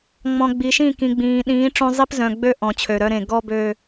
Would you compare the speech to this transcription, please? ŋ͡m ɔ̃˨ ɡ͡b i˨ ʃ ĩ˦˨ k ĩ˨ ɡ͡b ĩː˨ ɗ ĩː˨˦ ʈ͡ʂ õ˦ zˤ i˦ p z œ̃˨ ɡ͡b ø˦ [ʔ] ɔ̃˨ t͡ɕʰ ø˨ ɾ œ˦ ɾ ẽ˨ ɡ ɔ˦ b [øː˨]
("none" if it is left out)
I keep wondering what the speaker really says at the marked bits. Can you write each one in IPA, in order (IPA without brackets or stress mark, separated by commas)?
ʔ, øː˨